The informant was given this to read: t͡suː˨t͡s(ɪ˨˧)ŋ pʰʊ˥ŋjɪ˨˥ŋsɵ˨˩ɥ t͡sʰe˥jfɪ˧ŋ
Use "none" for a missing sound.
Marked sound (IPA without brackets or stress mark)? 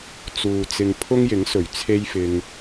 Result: ɪ˧